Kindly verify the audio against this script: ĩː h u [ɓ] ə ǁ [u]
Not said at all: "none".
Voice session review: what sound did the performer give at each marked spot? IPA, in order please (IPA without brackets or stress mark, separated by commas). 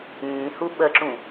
ɓ, ũ